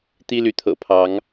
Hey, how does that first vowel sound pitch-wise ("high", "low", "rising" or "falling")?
high